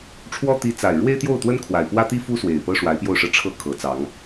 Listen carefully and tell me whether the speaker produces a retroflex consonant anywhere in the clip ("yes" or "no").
yes